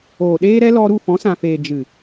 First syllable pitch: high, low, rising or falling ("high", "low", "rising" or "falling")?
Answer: low